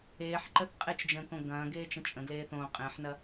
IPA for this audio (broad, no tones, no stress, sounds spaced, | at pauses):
eː ħ ǃ ə θ qʼ e t͡ʃ d͡ʒ ə̃ː k õ ɡ ɐ̃ː ɡ eː t͡ʃ ə̃ t͡ʃʼ ə̃ ɡ l eː θ õː qʼ ẽː ħ n ɐ